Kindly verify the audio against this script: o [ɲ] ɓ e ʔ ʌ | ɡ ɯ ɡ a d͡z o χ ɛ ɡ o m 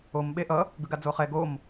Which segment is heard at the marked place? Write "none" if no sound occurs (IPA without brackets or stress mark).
m